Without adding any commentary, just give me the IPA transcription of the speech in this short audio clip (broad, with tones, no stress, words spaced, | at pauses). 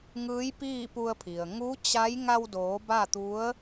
ŋɯː˧˥jpiː˥˨pu˧ə̯pʰi˩ə̯ ŋu˧˥t͡ɕa˧˥j ŋa˧wdoː˩˧ ba˥˨t̪u˧˥ə̯